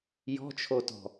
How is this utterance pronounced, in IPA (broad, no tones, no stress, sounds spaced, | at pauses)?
j ɔ̤ t͡ʃʰ o t ɔ̤